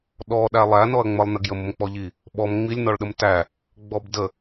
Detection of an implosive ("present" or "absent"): present